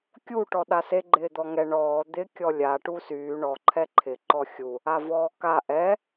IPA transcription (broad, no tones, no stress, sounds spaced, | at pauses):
kʲ u ʈ ɔ ɗ a s e ɡ͡ǃ ɪː d̪ ɔ ŋ ɛ ɳ ɔː d̪ ɪ kʲ ɔ lʲ a ʈ u s yː ɳ ɔ ǃʰ ɛ ǃʰ ɪ ǃ ɔ xʲ u | a v ɔː k a ʔ ɛ